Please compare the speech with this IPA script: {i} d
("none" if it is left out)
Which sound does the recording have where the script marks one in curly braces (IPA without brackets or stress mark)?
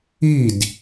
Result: i